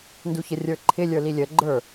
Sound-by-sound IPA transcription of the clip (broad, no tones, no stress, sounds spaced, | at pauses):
n d u ç ə rʲ ə˞ ǃʰ ɪ lʲ ə˞ l i lʲ ə ɡ͡ǃ ə˞